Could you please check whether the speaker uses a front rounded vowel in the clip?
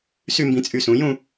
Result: yes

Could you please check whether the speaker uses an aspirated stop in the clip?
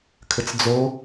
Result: yes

